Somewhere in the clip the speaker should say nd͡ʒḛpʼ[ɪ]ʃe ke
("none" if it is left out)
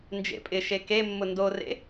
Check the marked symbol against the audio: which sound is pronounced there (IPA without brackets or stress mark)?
ɪ